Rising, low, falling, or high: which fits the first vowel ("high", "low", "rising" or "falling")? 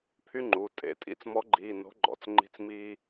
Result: high